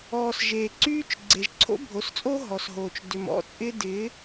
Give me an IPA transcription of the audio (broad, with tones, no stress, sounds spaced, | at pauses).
ɔː˨ s ʒ eː˨ ǀ yː˦ t͡ʃ ɡ͡ǀ e˨ ʒ ǀʰ o̰˦ bʱ o˨ s t͡sʼ oː˦ ɦ ɔ˨ s ɦ oː˨ t͡ʃ d ʏ˨ m ɔ̰˦ t͡sʼ ɪː˦ d ɪː˨˦